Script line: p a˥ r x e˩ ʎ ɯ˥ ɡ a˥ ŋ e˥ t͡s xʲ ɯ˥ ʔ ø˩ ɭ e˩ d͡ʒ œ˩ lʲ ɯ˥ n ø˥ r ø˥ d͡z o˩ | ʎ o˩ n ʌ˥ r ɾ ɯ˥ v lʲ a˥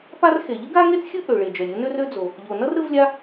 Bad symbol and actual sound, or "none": none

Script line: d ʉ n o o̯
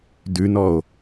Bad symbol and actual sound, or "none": o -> ɔ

